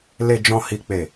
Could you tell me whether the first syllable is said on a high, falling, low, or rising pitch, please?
low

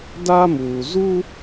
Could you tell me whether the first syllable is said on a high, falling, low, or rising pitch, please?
high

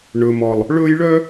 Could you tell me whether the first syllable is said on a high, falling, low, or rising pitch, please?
low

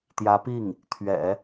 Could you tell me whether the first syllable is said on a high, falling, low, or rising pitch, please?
rising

